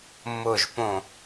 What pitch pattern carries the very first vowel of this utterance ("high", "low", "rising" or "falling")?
low